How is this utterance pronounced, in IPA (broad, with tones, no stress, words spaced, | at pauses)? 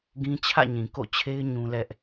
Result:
ɡĩ˦ t͡ɕʰä̰˦˨ɲĩ˨ko̰˦˨t͡ɕʰe˦ɪ̯ ɲũ˦lɛ˦ʔ